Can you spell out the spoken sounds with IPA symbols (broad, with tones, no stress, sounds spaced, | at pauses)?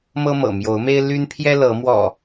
m ɤ˦ m ɤ̰˨˩ m j o˨˦ ʊ̯ m e˦ ɪ̯ l y˦ n pʰ j ɛ˦ l ɤ˨˦ m w ɔ̰˨˩